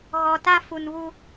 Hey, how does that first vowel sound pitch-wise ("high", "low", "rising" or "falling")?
low